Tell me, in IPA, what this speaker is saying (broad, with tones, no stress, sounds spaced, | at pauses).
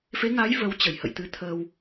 f e˨˦ ŋ a˨˦ j v ə˨˦ w t͡ɕ ə˧˩ j h ə̰˧˨ j t̪ ɨ˨˦ t̪ʰ əː˧ w